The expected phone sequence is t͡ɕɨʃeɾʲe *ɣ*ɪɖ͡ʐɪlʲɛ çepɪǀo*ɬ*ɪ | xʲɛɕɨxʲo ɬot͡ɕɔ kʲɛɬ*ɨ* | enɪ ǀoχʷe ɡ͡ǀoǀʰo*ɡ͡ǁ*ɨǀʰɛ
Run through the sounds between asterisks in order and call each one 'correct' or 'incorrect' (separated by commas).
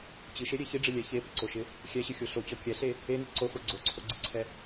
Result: incorrect, incorrect, incorrect, incorrect